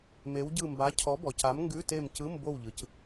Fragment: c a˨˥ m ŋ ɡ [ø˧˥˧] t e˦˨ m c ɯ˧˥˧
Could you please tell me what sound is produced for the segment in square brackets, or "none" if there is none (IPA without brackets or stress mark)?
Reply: ʉ˧˥˧